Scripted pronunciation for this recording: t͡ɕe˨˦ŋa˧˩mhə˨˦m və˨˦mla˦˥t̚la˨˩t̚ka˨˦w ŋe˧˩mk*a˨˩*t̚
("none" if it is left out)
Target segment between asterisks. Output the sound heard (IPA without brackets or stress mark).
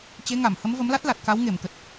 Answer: ə˨˩